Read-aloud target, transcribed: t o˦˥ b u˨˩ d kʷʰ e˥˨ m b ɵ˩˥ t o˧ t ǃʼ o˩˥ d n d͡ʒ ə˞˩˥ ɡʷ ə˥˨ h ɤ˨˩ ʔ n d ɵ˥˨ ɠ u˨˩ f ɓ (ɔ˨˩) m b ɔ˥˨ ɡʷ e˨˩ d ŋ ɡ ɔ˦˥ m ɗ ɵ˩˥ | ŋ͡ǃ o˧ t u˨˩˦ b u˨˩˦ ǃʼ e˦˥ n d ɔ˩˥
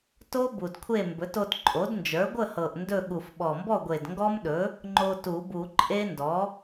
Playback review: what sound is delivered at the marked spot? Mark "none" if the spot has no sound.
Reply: ɔ˨˩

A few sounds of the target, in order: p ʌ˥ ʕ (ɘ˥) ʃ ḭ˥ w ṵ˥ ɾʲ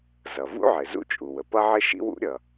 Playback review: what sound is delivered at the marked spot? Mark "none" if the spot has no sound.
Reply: ɘ˥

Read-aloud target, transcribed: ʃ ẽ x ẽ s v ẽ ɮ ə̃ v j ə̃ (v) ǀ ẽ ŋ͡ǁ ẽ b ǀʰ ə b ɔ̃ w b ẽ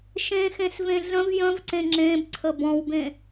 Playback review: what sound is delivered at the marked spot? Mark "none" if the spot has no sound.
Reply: v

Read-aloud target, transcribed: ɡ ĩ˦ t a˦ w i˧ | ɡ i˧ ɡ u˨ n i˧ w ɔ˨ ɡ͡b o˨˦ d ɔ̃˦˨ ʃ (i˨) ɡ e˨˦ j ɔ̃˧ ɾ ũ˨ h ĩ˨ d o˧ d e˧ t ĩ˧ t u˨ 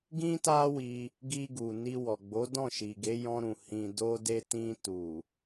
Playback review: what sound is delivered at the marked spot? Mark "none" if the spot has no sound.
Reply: i˨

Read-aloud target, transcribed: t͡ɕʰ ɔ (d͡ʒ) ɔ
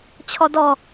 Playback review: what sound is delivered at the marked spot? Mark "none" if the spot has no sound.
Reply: d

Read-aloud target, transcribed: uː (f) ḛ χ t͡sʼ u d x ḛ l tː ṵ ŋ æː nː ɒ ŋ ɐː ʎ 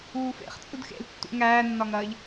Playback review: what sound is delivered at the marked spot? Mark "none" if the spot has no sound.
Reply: f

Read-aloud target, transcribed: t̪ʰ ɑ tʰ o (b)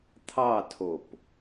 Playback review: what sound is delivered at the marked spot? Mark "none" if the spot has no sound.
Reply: p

